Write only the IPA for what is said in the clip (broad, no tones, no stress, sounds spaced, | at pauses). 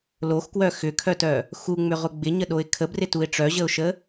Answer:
l o x k w œ x ʏ kʰ œ t œ | x u ŋ͡m ʏ ʁ ʊ ɡ͡b ɪ ɲ ə ɗ o ɪ̯ kʰ ə b r ɪ t u ɪ̯ ʈ͡ʂ œ ʑ ə ʊ̯ ʃ ə